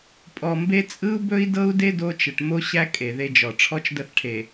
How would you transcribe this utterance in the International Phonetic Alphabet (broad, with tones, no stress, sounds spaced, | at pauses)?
pʼ ɔ˨ m b e˦ t͡sʼ ɯ˦ u̯ b ɵ˦ i̯ d ɤ˦ u̯ d e˦ d o˦ t͡ʃ ə˨ ʈ m o˦ ɕ æ˦ kʼ e˨ ð e˦ d͡ʒ ɔ˨ ʈ͡ʂʰ ɔ˦ t͡ʃ d ə˦˨ θ ʈʰ e˨